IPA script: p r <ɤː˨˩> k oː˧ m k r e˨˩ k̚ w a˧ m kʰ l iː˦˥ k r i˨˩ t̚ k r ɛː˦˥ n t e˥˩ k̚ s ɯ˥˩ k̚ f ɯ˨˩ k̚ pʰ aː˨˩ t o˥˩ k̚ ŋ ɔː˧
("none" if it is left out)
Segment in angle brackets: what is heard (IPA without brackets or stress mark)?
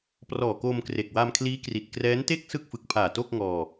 ɔː˨˩